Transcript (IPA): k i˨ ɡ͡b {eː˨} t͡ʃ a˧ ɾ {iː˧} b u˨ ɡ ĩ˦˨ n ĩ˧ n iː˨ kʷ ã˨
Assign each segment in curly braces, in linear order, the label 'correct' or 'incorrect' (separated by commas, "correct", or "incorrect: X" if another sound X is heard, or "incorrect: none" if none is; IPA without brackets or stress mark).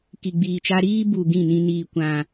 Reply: incorrect: iː˨, incorrect: iː˦